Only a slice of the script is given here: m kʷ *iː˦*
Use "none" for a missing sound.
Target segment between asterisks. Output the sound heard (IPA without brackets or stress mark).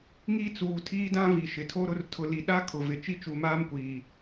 iː˨